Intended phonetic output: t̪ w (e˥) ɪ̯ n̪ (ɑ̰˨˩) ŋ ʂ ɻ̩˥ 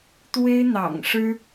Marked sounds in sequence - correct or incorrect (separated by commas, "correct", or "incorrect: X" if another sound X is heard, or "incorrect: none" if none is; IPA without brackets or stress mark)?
correct, correct